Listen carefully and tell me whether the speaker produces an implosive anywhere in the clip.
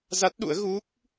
yes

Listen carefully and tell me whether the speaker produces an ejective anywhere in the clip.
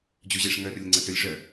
no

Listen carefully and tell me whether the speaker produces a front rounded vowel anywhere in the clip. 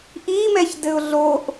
no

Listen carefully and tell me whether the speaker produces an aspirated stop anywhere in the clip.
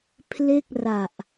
yes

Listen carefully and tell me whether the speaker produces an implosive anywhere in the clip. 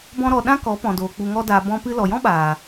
yes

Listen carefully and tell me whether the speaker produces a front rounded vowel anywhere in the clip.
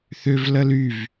yes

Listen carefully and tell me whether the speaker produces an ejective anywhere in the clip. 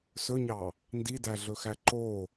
no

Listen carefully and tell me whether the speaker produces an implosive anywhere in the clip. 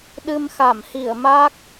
yes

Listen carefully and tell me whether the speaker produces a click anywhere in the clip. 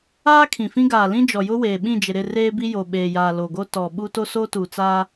no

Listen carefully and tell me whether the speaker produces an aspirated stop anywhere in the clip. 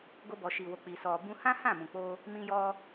no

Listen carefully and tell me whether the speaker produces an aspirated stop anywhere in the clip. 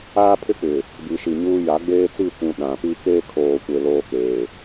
yes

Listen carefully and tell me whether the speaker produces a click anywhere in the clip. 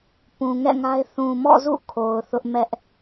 no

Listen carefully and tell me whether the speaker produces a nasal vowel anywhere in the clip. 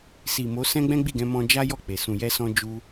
yes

